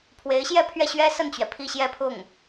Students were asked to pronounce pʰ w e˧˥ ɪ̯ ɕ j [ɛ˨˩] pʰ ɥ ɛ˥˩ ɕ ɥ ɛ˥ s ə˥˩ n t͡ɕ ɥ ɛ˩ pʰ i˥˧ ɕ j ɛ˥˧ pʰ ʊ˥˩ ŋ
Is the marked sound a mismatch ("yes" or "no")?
yes